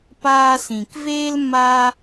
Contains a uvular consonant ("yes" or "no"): no